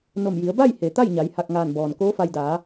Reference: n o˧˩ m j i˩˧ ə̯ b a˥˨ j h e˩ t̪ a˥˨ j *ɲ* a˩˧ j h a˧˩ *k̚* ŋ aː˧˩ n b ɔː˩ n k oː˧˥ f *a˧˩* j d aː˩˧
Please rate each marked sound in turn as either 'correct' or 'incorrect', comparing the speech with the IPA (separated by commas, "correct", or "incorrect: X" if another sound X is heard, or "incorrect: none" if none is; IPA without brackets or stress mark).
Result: correct, correct, incorrect: a˧